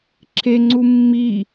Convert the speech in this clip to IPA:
ǁʰeŋ͡ǀu mːi

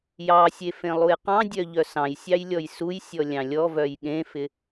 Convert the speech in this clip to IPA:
jɑsʲe fẽlˠujqɑ̃dʲœ ʎœsɑ̃jsʲɑj lʲɔjsujsʲɔ lʲɑ̃lʲɔvœj ɠẽfɪ

